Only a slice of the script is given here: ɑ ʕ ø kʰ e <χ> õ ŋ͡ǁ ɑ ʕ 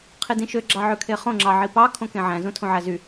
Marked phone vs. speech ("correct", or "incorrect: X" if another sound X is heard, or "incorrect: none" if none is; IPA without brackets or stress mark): correct